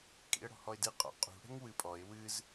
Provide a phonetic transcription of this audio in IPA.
kʼḭə̯ɽɔ̤hɔɪ̯dɨ qʼɔ̰qʼṳ ɽɛ̤ŋwɨpʼɔɪ̯ wɨz

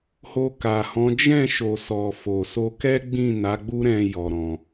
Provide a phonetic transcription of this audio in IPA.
ho˧ka˨hɔ̃˨˦ d͡ʒɛ̃˦˨ʃo˨ sɔ˨ fo˨ so˧kɛ˦ɡ͡bĩ˦˨ na˨˦ɡ͡bu˦ɾɛ̃˧ jɔ˧ɾɔ̃˧

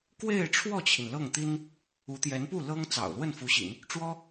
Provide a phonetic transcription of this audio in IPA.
kwe˥˧ɪ̯ʈ͡ʂʰwɔ˥˩t͡ɕʰi˩n lɤ˥˩ŋt̪i˥n | u˧˥t̪jɛ˧˥npu˥˩ lɤ˥ŋ t͡sɑ̰˨˩ʊ̯lwə˥˩nfu˧˥ɕḭ˨˩˦n | ʈ͡ʂwɔ˥

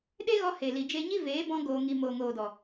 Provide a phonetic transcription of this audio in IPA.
ɗe˦ɣɔ˧ he˨li˨d͡ʒe˧ɲi˦ veː˨˦bɔ̃˧ ɡoː˧ŋi˧ moː˨ŋoː˨dɔ˨

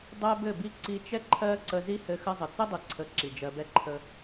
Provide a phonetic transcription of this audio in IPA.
dˤæ˦ bɘ˦˨bi˦˨ ǀi˧t͡ʃɛ˦ǃʰɜ˦ ǀə˧zi˦hɘ˧ xə˧zˤə˨t͡sɘ˦ dˤɘ˨ǀʰə˨˦ ǁi˨d͡ʒɜ˧bɛ˦ ǃʰə˧

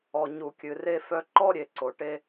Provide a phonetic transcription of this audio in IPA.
ɔ˨ ɲu˨kʲɨ˨re˦fœ˦ ǃɔ˦ɾʲe˨ǀo˨ ʈe˦

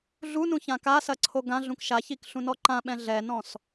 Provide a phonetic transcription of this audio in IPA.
ɮunũçã kasɐǀʰo ɡãɮũk ʃaçikɬũnɔ ǃãɓɛ̃ ɮɛnɔ̃s

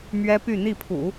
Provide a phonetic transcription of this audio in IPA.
mɥɛ˥py˥˧ n̪i˥˩pʰṵ˨˩˦

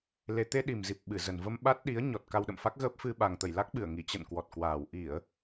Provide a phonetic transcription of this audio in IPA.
le˨˩t̪e˧ ɗi˨˩mzi˨˩p̚ ɓɨ˧˩zə˨˩nvə˧m ɓa˦˥t̚ ɗi˨˦ə̯ ɲɔ˨˩t̚ ka˧wɗə̰˧˨mfa˦˥k̚ɣəː˦˥p̚ fɨ˧ ɓa˨˩ŋt̪ə˧˩j la˦˥k̚ɓɨ˧˩ə̯ŋi˧˩ t͡ɕə̰˧˨n kwɔ˨˩t̚kwaː˨˩w ʔi˧˩˨ə̯

